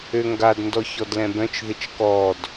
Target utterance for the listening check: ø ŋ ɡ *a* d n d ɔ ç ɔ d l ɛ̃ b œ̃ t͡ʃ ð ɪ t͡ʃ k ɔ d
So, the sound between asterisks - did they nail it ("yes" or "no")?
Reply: yes